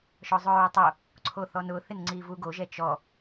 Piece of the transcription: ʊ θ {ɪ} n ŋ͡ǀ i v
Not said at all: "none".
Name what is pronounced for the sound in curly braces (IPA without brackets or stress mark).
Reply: ɪ